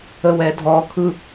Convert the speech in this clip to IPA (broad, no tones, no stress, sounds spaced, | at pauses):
ə w ɛ dʱ ɔ kʰ ɯ